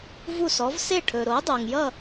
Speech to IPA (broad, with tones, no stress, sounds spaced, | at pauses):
v u˥˩ s ɔ˩˥ v s e˥˩ ʈʰ ɵː˩ ɾ oː˩˥ dˤ oː˩ ŋ j ʌ˥˩